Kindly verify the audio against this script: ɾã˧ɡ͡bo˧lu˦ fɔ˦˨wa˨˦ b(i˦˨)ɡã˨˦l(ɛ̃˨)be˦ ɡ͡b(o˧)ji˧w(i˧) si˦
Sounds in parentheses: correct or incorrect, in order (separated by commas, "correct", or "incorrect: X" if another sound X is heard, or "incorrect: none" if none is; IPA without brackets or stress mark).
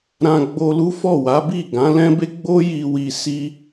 correct, incorrect: ɛ̃˦, incorrect: o˦, correct